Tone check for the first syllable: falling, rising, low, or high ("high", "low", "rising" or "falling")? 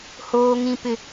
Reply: high